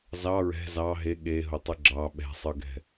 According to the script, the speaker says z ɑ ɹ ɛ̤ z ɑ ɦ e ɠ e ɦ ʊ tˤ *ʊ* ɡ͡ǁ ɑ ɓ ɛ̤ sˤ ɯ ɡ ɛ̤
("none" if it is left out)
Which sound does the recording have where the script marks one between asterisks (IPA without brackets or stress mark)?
ɯ